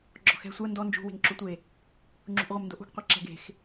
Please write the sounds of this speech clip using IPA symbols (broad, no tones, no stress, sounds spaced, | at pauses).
ɡ͡ǁ ɔ̤ x ɛ̤ sʷ ɜ n d ɔ n d͡ʒ ṳ w e̤ ŋ ǁ u tʷ e | ŋ͡ǁ ṳ ʔ ʁʷ ɛ m n d o ʔ ṳ ɡ qʷ e ǁ ɛ̤ ɡ e̤ x